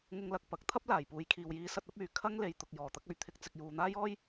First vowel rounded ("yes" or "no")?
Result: yes